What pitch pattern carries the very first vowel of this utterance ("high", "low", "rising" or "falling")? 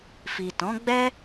low